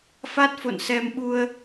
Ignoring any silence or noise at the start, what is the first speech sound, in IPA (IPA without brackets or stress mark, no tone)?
f